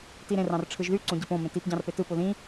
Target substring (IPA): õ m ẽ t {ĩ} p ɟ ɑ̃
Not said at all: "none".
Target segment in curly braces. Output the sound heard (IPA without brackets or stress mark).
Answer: i